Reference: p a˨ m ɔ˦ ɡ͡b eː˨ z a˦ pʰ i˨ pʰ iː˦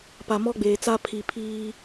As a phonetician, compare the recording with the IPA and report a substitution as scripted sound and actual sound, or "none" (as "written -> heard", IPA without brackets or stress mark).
z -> t͡s